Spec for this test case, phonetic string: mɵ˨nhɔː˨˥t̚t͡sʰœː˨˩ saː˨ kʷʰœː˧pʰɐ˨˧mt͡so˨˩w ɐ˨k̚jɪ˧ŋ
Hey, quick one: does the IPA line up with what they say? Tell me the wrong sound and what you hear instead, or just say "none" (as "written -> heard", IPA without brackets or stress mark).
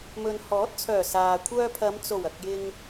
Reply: none